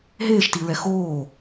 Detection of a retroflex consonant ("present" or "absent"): absent